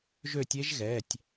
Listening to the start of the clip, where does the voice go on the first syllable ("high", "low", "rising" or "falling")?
falling